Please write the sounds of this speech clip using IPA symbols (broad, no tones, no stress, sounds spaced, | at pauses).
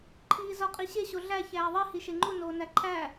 ǃʰ iː z ɒ qʼ i ɕ e ɕ o ɮ æ ç æː ðˤ i h i ʃ e ŋ͡ǃ u n oː n æ ǃʰ æ